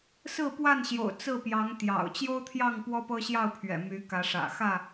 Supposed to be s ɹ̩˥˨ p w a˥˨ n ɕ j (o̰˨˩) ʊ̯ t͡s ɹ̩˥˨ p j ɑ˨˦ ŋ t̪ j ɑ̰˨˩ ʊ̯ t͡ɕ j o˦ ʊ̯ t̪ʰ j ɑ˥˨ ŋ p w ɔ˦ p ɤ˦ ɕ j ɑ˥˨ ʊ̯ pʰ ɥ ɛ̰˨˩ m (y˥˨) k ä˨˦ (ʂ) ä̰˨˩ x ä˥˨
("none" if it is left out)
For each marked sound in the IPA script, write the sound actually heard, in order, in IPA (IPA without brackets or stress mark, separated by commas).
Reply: o̰˨˩, y˨˦, ʂ